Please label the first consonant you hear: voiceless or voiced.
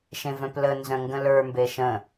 voiceless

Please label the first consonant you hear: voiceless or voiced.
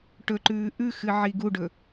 voiceless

